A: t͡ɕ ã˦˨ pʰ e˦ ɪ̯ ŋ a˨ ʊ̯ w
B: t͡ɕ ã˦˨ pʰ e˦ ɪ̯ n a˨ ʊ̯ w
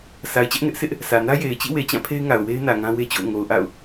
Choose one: A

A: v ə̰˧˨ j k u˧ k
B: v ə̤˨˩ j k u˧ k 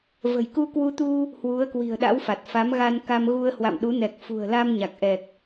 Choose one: B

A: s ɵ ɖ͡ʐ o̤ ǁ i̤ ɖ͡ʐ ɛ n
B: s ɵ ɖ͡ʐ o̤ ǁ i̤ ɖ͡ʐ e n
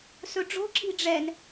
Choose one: A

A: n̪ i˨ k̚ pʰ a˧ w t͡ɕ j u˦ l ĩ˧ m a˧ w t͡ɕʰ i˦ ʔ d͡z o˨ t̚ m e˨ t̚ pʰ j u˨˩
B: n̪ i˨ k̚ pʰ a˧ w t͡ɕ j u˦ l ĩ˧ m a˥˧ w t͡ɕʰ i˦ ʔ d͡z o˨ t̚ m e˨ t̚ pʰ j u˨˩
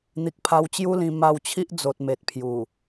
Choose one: A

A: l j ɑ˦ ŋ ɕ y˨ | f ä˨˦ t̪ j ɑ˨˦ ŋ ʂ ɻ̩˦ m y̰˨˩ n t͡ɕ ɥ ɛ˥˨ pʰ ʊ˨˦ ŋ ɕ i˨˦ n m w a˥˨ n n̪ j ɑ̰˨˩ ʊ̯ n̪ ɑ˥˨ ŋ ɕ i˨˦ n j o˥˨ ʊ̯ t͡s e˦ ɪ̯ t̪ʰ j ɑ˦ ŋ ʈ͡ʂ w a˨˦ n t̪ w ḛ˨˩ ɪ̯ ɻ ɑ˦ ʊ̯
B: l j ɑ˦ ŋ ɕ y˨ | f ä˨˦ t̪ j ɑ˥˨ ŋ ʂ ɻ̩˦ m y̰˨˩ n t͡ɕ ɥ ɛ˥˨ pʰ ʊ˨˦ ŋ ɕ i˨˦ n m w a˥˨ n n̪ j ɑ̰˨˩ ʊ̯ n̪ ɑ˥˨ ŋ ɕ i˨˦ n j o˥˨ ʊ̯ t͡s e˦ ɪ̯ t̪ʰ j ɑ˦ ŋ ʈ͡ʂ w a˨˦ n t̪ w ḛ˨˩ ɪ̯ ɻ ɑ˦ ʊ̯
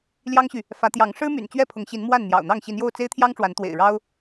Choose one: A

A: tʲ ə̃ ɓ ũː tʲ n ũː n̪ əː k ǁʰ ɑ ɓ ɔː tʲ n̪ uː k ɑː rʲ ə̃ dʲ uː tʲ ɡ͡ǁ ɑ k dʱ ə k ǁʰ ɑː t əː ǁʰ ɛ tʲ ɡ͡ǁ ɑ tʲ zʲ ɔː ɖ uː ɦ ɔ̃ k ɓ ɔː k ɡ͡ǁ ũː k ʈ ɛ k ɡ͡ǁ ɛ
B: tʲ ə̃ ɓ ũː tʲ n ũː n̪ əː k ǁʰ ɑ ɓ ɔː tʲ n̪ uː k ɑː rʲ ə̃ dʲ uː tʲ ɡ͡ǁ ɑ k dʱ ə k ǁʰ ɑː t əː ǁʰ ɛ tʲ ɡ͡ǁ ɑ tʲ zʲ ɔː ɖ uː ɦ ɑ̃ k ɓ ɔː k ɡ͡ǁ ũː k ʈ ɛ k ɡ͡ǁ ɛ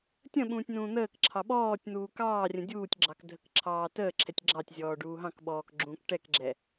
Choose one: B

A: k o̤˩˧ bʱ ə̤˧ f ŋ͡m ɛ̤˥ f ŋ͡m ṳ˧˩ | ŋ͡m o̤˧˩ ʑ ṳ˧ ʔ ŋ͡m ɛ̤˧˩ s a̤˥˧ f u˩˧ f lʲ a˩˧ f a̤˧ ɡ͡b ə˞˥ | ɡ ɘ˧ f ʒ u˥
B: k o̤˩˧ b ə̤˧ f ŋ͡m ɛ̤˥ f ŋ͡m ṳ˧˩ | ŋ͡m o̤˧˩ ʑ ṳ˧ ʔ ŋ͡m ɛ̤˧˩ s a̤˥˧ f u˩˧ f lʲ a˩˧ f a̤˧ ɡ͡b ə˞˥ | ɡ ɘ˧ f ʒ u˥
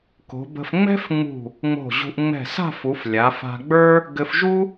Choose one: B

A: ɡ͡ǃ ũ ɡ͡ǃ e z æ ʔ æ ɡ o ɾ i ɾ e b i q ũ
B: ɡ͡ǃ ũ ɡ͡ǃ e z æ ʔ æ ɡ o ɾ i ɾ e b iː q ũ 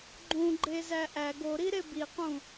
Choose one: A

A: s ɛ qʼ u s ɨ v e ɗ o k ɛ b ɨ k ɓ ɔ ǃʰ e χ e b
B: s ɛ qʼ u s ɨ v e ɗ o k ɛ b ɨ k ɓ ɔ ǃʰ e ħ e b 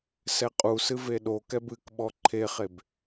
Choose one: A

